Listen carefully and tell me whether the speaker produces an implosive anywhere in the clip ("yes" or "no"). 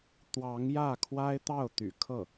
no